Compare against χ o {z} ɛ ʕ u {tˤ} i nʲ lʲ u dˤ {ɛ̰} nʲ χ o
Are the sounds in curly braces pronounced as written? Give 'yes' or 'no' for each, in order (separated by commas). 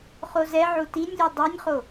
yes, no, no